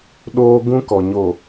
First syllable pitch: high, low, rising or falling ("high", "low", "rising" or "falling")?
high